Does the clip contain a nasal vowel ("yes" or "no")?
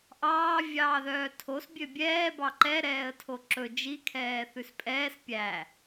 no